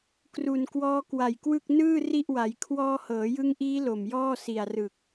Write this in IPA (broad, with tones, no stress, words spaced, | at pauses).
kru˨˩nkwɔː˦˥kwa˨˩jkwɯ˥˩k̚ nɯː˥˩ ri˥˩ʔwa˩˦j kʰwɔː˧hɤː˩˦jɯ˦˥ŋʔiː˦˥ lo˨˩m jɔː˥˩si˨˩a̯rɯ˨˩k̚